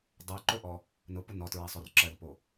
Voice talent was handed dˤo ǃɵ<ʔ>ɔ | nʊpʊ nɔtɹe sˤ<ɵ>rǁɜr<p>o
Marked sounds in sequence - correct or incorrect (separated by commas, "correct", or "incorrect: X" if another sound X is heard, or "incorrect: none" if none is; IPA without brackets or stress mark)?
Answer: correct, correct, correct